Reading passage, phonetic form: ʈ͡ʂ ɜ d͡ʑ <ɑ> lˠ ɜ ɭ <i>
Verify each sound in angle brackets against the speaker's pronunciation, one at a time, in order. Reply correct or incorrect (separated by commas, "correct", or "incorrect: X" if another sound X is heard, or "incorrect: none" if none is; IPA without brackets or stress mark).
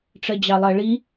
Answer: correct, correct